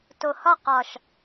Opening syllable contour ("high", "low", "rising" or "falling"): low